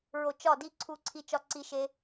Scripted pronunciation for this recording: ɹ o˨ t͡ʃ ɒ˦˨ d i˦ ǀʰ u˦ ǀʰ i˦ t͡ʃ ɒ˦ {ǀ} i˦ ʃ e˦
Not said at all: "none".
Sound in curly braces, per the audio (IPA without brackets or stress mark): ǀ